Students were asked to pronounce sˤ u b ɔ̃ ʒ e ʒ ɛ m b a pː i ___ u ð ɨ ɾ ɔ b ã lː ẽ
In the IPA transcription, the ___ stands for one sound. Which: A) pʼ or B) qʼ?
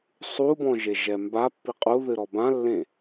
B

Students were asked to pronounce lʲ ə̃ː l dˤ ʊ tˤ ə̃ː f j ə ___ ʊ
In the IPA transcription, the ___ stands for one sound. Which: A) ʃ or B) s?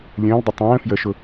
A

